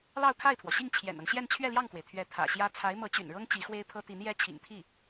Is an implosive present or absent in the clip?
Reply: absent